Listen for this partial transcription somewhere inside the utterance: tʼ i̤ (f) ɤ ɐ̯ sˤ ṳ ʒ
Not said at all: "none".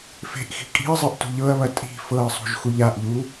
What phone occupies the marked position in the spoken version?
f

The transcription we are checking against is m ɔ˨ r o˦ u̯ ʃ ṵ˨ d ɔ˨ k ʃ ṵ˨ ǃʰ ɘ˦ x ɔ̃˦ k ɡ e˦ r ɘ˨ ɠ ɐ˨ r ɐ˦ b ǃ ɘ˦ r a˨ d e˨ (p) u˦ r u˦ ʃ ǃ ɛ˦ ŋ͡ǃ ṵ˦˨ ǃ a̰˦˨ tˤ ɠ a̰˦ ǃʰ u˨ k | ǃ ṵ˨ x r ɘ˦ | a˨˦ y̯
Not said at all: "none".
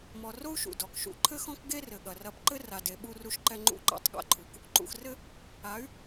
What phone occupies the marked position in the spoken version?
ɓ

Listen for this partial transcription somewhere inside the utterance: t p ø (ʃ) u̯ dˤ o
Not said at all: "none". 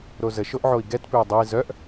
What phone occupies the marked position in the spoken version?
none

